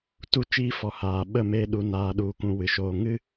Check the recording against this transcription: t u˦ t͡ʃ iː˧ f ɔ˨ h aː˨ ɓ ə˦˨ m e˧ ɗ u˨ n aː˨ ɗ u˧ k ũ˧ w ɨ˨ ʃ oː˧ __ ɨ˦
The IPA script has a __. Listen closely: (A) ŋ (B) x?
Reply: A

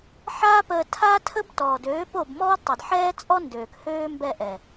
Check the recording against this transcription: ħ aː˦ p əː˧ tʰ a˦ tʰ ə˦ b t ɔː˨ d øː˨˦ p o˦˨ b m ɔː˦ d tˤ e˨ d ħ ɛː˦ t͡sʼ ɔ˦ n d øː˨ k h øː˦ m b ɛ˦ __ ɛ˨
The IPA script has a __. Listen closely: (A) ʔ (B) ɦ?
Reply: A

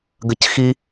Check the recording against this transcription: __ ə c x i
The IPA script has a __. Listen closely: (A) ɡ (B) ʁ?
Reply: A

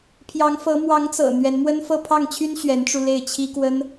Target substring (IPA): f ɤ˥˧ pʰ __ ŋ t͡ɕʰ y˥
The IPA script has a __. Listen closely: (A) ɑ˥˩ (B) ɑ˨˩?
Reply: A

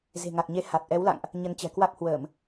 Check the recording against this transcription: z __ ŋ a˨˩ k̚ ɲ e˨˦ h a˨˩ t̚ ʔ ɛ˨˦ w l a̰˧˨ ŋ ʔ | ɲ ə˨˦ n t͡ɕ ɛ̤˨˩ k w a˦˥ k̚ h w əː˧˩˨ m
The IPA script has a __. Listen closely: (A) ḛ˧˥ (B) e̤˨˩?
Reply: B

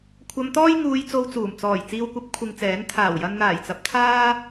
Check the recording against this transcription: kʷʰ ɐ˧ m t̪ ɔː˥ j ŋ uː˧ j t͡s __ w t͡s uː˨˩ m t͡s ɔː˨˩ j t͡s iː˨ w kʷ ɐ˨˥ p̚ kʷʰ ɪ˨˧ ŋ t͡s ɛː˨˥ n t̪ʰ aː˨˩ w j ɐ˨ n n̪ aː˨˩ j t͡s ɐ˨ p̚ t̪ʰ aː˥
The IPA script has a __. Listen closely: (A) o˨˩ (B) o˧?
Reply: B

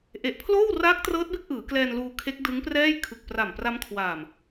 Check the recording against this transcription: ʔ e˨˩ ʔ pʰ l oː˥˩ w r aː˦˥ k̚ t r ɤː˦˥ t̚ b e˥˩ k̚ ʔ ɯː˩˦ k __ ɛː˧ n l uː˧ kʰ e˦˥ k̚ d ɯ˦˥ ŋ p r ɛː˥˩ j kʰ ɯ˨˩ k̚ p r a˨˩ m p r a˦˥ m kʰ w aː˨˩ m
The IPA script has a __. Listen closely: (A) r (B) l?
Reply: B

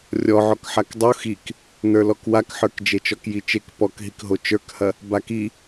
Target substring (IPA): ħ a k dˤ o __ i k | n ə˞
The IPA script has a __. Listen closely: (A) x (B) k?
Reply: A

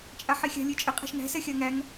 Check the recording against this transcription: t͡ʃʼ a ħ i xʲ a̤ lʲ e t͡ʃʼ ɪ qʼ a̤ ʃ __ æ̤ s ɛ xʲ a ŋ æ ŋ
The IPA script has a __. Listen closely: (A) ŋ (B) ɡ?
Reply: A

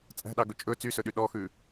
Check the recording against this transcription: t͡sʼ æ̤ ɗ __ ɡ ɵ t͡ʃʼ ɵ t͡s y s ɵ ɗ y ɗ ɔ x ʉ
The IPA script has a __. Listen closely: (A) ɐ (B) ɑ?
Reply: B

